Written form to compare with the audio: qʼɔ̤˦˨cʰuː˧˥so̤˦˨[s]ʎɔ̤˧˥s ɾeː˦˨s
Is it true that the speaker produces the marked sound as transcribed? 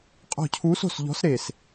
yes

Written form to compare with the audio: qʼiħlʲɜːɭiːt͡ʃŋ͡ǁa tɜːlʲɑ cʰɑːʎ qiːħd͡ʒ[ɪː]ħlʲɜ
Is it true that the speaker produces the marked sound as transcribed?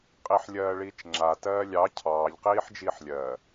no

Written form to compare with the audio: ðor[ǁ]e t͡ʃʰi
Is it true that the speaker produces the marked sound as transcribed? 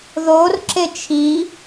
yes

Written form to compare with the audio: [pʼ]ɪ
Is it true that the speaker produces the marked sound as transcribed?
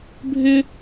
no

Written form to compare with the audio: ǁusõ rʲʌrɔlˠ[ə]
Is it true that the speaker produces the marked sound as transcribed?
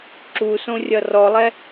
no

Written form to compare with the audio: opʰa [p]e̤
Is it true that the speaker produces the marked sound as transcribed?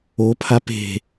yes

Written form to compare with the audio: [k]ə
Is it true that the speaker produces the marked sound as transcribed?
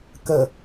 yes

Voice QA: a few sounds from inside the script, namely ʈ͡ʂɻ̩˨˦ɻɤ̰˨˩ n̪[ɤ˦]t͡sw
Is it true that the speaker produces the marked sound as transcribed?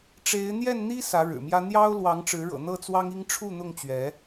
no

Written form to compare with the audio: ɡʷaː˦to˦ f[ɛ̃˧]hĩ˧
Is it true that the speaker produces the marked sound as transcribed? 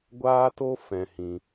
yes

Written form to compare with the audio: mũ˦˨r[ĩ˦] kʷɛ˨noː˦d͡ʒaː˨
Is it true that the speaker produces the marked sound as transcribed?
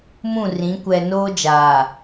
no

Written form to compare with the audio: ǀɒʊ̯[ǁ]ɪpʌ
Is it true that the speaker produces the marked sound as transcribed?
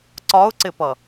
no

